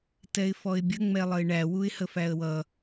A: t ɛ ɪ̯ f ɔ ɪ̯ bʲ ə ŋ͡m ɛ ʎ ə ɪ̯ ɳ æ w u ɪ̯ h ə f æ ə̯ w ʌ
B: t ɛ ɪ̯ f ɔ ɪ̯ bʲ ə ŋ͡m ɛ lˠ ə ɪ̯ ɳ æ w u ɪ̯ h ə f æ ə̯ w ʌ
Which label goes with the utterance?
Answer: B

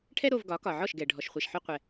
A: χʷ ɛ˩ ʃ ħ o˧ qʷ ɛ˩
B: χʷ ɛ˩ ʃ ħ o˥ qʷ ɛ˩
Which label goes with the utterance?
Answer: A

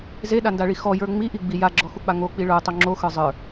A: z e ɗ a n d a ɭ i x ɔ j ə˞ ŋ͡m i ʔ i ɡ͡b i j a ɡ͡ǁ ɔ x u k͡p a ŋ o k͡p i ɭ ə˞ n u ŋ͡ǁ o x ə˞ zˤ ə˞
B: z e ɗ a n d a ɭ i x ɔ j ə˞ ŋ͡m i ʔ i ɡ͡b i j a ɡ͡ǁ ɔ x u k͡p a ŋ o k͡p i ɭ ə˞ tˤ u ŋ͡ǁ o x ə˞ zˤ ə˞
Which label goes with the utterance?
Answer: B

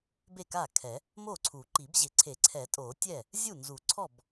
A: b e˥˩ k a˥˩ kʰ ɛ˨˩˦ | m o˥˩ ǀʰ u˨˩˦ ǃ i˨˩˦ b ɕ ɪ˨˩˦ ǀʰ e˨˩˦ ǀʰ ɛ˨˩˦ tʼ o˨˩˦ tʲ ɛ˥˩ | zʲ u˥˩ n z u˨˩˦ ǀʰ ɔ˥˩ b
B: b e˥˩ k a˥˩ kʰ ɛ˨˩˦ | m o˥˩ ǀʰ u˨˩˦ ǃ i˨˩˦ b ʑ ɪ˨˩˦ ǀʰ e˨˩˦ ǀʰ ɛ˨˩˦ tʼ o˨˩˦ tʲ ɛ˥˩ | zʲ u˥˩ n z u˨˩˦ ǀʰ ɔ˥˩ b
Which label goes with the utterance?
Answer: B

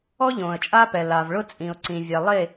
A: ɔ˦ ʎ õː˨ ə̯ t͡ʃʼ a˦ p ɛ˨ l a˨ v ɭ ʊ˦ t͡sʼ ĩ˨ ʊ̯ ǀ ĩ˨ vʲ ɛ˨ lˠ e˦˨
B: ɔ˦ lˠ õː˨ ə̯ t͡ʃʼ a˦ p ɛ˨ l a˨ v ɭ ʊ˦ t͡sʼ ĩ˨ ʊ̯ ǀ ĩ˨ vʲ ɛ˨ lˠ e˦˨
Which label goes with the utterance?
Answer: A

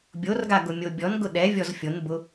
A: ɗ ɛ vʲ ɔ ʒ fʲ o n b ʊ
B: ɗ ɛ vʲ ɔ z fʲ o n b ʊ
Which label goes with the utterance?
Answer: B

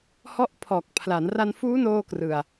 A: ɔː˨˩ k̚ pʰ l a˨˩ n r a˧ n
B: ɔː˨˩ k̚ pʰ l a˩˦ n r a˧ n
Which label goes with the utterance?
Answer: B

